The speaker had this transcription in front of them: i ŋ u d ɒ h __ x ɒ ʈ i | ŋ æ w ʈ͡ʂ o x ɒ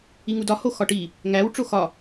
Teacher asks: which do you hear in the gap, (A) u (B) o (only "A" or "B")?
B